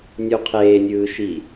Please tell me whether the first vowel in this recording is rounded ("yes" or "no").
yes